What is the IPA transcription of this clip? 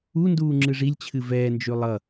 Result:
unduː ŋ͡ǁɨʐilʲt͡ɕʰɨ vɛːnd͡ʒʉ lˠʌ

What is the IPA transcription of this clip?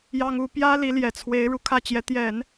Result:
jɑ˥ŋu˥ pjä˥ li˧˥ljɛ˨˩t͡sʰwe˧˥ɪ̯ ɻu˨˩kʰä˥˩t͡ɕjɛ˧˥ t̪jɛ˨˩˦n

